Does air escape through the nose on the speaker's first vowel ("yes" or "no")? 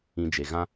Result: yes